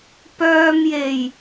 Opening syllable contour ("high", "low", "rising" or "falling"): low